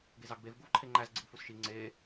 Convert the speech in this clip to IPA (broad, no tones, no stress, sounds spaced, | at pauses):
ɡ e z ɑ ɡ b e v ɡ u v ǃʰ e ŋ͡ǃ æ z ɡ͡ǀ i ɡ f u s ʃ i ŋ͡ǀ e